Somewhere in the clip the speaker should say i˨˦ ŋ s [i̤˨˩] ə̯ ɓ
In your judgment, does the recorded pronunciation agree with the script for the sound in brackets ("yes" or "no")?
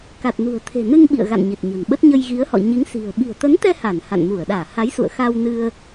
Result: yes